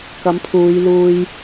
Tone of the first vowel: rising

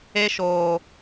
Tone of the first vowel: high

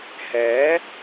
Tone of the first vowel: rising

